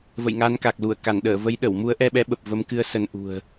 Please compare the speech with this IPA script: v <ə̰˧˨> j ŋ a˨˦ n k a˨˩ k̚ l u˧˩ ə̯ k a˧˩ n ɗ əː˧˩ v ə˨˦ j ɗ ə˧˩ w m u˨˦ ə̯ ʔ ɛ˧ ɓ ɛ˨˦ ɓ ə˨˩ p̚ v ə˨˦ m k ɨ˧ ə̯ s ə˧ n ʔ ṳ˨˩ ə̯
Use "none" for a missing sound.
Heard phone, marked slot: ə̰˧˨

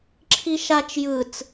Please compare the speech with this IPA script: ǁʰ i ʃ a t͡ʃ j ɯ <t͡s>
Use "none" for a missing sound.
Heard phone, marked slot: t͡s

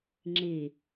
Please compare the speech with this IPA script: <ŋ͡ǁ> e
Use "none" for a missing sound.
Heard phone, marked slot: ŋ͡ǁ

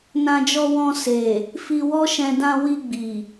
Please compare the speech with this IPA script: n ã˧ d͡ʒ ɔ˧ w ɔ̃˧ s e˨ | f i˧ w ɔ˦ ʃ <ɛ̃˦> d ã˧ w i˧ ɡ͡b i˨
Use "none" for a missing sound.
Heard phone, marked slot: ɛ̃˧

